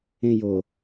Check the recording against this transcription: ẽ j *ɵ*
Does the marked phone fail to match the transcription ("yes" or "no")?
yes